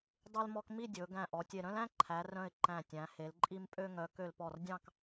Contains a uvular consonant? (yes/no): no